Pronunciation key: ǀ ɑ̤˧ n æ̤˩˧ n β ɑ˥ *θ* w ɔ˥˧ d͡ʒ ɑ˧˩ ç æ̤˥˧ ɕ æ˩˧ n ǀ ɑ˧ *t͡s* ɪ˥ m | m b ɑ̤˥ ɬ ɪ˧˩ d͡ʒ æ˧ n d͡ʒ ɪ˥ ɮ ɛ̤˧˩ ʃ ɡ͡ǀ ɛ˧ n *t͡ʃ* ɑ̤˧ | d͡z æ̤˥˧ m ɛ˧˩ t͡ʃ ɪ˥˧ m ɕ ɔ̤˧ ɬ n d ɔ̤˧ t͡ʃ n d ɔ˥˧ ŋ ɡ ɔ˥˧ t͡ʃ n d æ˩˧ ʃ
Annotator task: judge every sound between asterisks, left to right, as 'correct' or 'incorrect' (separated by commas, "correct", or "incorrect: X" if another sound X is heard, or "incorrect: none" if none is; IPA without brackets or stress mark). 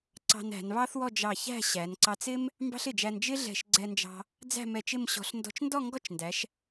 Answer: correct, correct, incorrect: d͡ʒ